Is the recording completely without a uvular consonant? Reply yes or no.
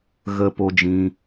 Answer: yes